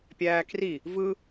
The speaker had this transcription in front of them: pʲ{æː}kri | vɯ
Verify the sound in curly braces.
correct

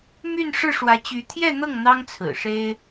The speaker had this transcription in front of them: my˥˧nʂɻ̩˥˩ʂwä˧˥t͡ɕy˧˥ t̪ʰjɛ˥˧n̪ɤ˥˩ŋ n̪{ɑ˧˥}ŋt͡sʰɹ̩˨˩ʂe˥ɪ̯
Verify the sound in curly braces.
incorrect: ɑ˥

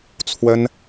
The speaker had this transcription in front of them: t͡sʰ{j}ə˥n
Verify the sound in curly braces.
incorrect: w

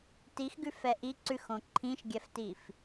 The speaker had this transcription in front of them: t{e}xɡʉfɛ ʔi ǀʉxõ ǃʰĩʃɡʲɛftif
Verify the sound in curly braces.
incorrect: i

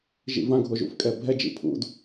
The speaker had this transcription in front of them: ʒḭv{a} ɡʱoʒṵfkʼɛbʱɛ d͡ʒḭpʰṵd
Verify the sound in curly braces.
incorrect: ã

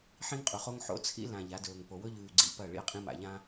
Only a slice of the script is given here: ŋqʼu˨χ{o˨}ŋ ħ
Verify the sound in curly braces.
incorrect: o˦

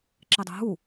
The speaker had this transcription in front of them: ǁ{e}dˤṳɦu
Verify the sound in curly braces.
correct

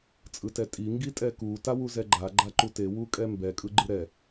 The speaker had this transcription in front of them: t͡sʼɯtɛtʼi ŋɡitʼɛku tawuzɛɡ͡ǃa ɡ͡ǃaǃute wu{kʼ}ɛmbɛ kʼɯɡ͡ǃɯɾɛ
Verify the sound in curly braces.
correct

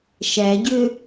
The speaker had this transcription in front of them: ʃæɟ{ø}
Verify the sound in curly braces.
correct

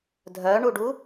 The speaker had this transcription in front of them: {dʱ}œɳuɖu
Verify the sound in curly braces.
correct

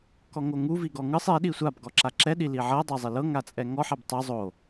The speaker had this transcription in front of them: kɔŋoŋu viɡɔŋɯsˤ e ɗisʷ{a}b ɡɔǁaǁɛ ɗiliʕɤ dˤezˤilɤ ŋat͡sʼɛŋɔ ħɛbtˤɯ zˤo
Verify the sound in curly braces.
correct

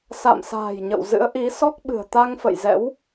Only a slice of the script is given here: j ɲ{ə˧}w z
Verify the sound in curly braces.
incorrect: ə̰˧˨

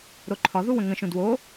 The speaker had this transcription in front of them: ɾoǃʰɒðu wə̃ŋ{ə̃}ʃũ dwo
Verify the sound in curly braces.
correct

